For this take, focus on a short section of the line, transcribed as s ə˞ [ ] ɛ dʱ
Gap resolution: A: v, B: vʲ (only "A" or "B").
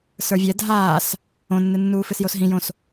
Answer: B